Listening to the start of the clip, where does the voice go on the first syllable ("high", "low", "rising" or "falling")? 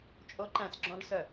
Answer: high